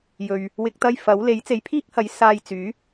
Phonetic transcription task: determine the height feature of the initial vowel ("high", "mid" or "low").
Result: mid